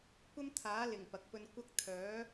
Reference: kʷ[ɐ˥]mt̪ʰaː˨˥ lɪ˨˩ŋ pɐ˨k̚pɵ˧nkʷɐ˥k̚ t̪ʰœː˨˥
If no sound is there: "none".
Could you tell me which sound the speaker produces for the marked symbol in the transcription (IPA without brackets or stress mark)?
ɐ˥